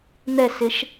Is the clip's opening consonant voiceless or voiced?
voiced